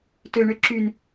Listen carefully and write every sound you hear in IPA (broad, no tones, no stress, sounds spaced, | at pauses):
t ø ɳ ø ǁ y n